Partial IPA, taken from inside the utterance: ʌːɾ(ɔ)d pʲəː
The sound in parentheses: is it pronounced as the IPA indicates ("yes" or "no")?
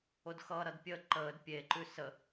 no